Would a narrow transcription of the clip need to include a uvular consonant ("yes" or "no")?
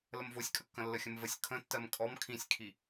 no